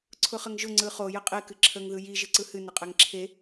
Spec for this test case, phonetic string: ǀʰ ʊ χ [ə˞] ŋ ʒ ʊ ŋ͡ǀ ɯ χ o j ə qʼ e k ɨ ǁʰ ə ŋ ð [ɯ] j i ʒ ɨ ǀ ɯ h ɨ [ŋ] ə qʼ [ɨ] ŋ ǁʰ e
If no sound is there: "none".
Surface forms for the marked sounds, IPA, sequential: ə, ɯ, n, ɛ

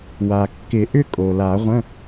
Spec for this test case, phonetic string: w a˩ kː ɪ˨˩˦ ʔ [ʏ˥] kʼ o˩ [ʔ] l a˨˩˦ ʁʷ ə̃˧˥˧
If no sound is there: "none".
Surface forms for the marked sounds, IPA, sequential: ʏ˥, none

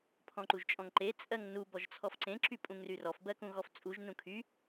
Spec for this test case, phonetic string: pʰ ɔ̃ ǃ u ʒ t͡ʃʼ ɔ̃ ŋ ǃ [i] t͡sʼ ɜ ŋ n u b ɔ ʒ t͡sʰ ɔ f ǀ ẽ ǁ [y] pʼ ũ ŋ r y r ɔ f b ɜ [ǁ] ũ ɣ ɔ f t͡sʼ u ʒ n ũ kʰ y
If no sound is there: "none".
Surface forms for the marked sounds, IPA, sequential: e, y, k

